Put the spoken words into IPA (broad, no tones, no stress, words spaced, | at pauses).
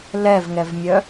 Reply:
lɛvŋɛvmʲœ